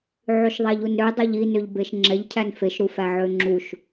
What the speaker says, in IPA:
ʕ ʉ ʃ ðˤ æ ʎ u n ɾ ø dˤ œ ʎ i n ø ʎ b e ʃ ŋ͡ǁ ɛ ʎ cʰ æ n f e ʃ ɾ u f æ ʕ ø ŋ͡ǁ u ʃ

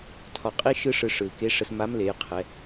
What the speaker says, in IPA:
tʰ ɒ˧ qʼ i˥ ʃ ɯ˥ ʂ ɯ˧ ʂ ɯ˩ l k e˧˥ ʂ ə˧ s m a˧˥ m l e˩˧ j qʰ ɛ˩˧

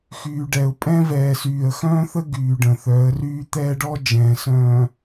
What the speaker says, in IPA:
x yː˨ ɖ ɛ˨ ʊ̯ pʼ ɛ̃˦ v ɛː˨ s yː˨ ə̯ x œ̃ː˦ θ ə˦ ɡ yː˨ ɖ ə̃˨ θ œ˨˦ ə̯ r yː˦ t̪ ɛː˦ ɖ ɔ˦ d͡ʒ ɛ̃ː˨ s œ̃ː˨

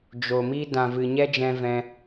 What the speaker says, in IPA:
d͡ʒ o˨ m i˦ d ã˨ v ɨ˨ ɲ ɛ˦ d͡ʒ ɛ̃˧ v ɛ̃˦

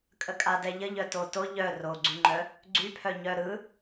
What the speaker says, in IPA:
kʼ ə kʼ a d ɛ ʎ ə ʎ œ t o t o ʎ œ r o ɡ͡ǀ y ŋ͡ǃ œ | ɡ͡ǀ y pʰ œ ɲ œ ɾ ɯ

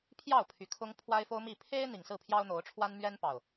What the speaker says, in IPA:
pʰ j ɑ˥˨ ʊ̯ pʰ y˨˩ kʰ ʊ˦ ŋ pʰ w a˦ ɪ̯ f o˦ ʊ̯ m i˥˨ pʰ e˦ ɪ̯ n̪ i˨˩ ŋ s ɹ̩˥˨ pʰ j ɑ˦ ʊ̯ n̪ o˨˦ ʊ̯ ʈ͡ʂʰ w a˦ n m ɥ ɛ˦ n p ɑ˨˩ ʊ̯

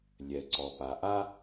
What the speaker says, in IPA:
lʲ ɛ˩ ǀ ɔ˩ p a˩˧ ʔ a˥

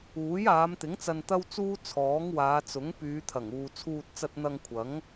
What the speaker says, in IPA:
uː˨˥ j aː˨˧ m t̪ ɪ˨˥ ŋ t͡s ɐ˧ n t̪ ɐ˥ w t͡s uː˥ t͡sʰ ɔː˨˥ ŋ w aː˨˧ t͡s ʊ˨˥ ŋ p yː˨˧ t̪ʰ ɐ˨˩ ŋ uː˨ t͡sʰ uː˧ t̚ t͡s ɐ˧ t̚ n̪ ɐ˧ ŋ kʷʰ ɐ˨˥ ŋ

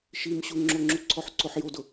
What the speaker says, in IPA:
ʃ i m ɕ u ŋ͡ǁ o ŋ͡ǁ u ǀʰ ɔ ħ ǀ o ħ j o d ʊ

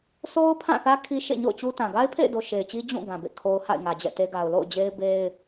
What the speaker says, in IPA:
s o˦ ʊ̯ pʰ ã˦˨ θ ä˦ kʰ i˦ ʃ ḛ˦˨ ɲ o̰˦˨ ʊ̯ t͡ɕ u˦ t ã˨ ɡ a˦ ɪ̯ pʰ ḛ˦˨ ɪ̯ d o˨ ʃ e˨ ɪ̯ t͡ɕ i˦ d͡ʑ ũ˦˨ ɡ ã˨ b ḛ˦˨ kʰ o˦ ʊ̯ h a̰˦˨ ɪ̯ ŋ ä˨ d͡ʑ ɛ̰˦˨ t e˦ ɡ a˨ ʊ̯ l o̰˦˨ ʊ̯ d͡ʑ e˦ ɪ̯ b e˦ ɪ̯

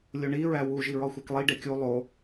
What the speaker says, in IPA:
lʲ o ɳ i ɹ æ w u ʒ i ɹ ɒ xʷ æ k lˠ i ɖ e kʲ u lˠ o

